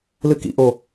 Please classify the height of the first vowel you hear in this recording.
high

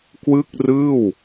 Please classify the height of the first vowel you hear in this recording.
high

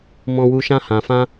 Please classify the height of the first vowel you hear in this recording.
mid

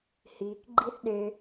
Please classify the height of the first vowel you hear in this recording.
high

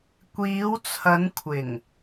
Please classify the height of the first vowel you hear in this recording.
high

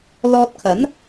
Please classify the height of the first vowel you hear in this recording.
mid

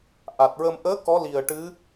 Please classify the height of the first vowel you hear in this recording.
low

